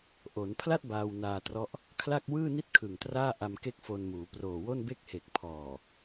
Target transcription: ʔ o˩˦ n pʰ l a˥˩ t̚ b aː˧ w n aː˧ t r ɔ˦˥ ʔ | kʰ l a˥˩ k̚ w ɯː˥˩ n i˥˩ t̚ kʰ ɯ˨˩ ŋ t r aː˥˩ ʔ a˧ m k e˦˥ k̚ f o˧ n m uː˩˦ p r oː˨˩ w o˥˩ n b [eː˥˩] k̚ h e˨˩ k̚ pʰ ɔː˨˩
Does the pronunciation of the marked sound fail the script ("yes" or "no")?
yes